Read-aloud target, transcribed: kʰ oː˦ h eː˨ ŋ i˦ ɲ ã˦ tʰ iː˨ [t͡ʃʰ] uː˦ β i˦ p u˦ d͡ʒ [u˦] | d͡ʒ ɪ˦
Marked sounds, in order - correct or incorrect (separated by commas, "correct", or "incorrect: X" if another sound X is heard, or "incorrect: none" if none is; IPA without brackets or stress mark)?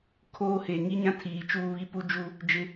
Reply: incorrect: t͡ʃ, correct